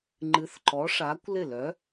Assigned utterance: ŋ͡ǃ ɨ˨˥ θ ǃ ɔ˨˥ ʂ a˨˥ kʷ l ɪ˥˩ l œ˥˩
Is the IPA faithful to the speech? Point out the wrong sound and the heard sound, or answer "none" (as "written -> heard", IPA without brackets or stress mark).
œ˥˩ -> œ˨˥